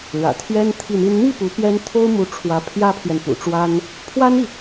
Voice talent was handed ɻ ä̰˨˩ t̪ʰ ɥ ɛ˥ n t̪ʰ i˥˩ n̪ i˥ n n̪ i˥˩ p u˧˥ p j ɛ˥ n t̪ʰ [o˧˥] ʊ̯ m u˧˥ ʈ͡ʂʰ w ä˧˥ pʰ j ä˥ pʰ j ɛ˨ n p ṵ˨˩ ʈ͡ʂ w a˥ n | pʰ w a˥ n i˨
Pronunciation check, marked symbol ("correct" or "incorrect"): incorrect